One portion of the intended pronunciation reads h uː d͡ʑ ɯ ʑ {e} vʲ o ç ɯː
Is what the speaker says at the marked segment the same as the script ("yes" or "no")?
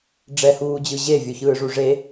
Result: yes